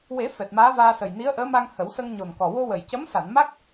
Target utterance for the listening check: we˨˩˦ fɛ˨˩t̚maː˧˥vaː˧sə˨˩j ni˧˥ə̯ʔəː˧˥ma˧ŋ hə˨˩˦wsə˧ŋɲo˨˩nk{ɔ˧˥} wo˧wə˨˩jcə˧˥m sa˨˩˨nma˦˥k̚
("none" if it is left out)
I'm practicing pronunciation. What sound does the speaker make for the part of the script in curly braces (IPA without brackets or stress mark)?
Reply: ɔ˨˩